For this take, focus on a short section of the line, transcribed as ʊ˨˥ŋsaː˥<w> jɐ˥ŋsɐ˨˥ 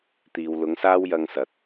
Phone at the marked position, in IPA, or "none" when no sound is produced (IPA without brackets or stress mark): w